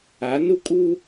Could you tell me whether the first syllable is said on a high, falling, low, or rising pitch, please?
rising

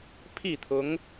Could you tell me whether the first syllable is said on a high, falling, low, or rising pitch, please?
falling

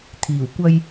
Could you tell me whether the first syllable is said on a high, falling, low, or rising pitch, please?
low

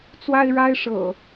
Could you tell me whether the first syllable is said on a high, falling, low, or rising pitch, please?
high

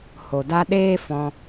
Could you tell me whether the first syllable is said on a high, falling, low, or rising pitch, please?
low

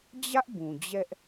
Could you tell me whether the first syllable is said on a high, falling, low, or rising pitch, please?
high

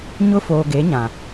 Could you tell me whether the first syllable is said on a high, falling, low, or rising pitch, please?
high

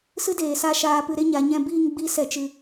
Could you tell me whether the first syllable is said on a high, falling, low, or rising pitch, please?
high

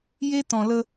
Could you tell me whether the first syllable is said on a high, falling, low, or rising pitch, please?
high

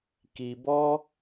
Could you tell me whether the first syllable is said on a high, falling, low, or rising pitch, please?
low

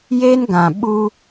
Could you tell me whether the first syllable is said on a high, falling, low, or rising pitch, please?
high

